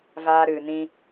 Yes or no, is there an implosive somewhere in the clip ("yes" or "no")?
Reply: no